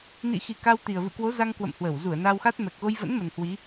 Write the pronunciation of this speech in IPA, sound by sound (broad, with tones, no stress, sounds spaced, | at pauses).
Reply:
n ḭ˧˨ x i˨˩ k a˧ w t̪ i˨˩ ə̯ v ɨ̰˧˨ k w o˨˦ z a˧ ŋ k w ə̰˧˨ m h w ə˧˩ w z u˧˩ ə̯ n a˧ w x a˦˥ t̚ m ɛ˨˩ k̚ ɣ o˧ j v ə̰˧˥ n m ə˨˩ n h w i˨˦